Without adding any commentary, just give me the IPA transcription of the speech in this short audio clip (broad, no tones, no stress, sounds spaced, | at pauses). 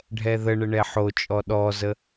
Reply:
ɖʱ ɛ ð ə ɳ ə ɳ ɛ ħ o t͡ʃʼ ɔ ɗ ɔ z ə